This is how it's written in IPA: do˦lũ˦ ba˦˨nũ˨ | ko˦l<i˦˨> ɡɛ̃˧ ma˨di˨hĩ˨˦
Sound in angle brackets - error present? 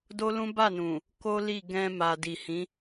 no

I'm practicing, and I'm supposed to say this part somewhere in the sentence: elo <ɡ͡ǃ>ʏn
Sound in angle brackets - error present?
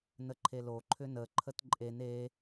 yes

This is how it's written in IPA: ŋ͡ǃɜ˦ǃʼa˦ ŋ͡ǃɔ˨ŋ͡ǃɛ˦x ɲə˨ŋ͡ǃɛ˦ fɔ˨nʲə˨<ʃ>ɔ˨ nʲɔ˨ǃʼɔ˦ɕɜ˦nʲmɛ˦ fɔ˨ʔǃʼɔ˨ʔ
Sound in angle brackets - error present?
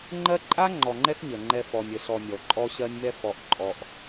yes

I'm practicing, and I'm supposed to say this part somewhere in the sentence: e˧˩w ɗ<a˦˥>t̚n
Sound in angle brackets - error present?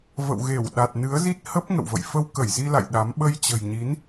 yes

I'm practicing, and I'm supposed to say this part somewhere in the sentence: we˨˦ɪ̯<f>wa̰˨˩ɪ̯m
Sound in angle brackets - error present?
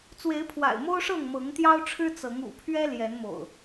yes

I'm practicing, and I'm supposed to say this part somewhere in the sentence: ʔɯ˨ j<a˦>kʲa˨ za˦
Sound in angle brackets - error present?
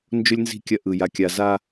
yes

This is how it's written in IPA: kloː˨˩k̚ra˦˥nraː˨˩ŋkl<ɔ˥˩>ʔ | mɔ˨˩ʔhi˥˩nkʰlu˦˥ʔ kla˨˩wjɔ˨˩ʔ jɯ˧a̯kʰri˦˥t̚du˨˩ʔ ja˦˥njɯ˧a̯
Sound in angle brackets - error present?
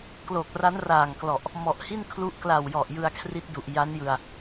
yes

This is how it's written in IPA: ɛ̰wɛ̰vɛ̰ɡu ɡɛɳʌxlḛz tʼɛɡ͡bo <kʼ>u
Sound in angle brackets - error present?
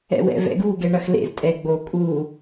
no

